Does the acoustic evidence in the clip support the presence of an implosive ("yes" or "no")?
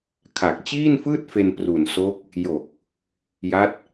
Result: no